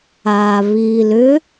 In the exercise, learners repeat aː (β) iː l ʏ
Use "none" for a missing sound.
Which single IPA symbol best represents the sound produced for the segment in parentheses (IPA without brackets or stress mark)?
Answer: β